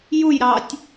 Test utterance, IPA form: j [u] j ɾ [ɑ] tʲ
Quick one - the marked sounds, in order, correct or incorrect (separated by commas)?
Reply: correct, correct